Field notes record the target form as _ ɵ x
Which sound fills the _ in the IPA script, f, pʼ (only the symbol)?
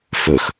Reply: f